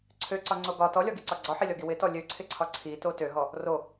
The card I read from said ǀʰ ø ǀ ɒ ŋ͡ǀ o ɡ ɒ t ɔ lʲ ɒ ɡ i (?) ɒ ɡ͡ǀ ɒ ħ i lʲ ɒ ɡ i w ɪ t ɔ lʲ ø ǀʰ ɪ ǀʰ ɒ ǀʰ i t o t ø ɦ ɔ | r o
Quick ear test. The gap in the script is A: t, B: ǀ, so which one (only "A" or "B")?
B